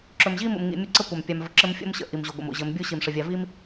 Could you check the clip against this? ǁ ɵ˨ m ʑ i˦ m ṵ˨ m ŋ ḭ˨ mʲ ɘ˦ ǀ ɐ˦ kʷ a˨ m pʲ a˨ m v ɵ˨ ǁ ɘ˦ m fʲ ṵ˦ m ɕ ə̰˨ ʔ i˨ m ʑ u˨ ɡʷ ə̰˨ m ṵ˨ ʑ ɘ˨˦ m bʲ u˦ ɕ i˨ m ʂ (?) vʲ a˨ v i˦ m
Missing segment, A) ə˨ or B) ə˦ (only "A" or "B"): A